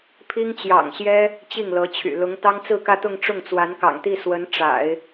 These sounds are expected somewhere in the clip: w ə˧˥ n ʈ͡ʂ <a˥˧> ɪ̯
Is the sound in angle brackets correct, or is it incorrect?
incorrect